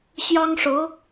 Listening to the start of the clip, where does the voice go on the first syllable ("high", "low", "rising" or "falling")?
high